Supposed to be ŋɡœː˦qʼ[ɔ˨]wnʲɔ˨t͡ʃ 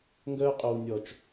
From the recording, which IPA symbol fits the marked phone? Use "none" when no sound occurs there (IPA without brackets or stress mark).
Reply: o˨